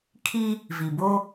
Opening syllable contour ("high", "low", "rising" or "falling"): high